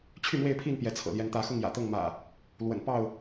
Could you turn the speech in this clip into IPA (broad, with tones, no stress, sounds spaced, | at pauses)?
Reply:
t͡ɕʰ y˥˨ m w e˥˨ ɪ̯ pʰ i˥˨ n p j ɛ˨˦ t͡sʰ ɤ̰˨˩ l j ɛ˨˦ n t̪ ä˨˦ x ʊ˥˨ ŋ j ä̰˨˩ t̪ ɤ˥˨ ŋ m ä̰˨˩ | l w ə̰˨˩ n p ɑ˥˨ ʊ̯